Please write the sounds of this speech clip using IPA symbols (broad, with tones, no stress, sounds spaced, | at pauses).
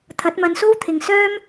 t̪ʰ ɐ˨˥ t̚ m ɐ˨˧ n s o˥ w t̪ʰ ɪ˨ ŋ s œː˥ m